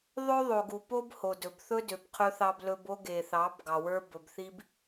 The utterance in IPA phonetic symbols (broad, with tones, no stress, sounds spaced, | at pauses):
ðˤ ø˦ ðˤ o˨ ɡ u˨ p o˦ b h o˨ d ɵ˨ b θ ɵ˦ d ø˨ b qʰ ɵ˦ θ ɑ˦ b l ɵ˦ b o˦ ɡ e˨ θ ɑ˨˦ b ɡ ɑ˨ w ə˞˦ b ɵ˨ b θ i˦ b